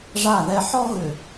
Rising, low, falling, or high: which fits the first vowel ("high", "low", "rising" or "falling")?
falling